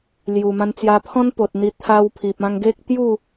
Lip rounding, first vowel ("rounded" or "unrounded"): rounded